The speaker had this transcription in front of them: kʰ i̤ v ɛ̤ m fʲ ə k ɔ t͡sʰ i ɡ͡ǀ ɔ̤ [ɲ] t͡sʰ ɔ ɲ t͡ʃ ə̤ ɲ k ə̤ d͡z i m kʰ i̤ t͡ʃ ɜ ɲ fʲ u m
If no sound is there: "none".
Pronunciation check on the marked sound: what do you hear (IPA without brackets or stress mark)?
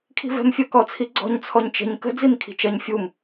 ɲ